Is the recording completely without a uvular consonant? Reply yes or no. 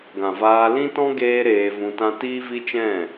yes